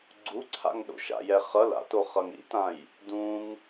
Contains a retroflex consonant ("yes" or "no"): no